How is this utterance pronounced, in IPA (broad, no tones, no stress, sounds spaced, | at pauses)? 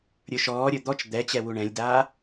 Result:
ɾʲ ə˞ ʃ ɔː ɾʲ ə˞ d̪ ɔ t͡ʃ d̪ ɛ t͡ɕ ɛ w u ɳ ɛ̃ lʲ d aː